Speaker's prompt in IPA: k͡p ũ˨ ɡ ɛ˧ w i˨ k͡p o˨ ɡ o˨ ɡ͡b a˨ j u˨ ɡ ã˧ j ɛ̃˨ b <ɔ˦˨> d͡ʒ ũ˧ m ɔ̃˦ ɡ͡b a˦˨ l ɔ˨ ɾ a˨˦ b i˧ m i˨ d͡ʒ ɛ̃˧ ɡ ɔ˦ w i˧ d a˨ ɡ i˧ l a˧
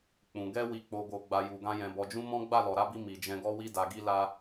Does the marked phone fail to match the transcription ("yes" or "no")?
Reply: yes